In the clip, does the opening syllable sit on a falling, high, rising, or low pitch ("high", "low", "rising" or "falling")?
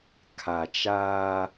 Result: low